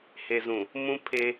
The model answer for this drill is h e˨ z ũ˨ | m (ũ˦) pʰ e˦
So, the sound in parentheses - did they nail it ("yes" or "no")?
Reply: yes